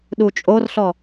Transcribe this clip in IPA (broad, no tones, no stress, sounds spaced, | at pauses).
ɗ u t͡ʃʼ o r ɬ ɔ